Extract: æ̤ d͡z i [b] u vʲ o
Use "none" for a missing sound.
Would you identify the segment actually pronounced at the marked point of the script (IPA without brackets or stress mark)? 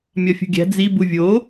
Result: b